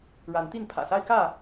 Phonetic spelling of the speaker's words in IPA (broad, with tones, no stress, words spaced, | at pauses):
ɻa˨˦nt̪i˥˨n pʰä̰˨˩sa˦ɪ̯kä˥˨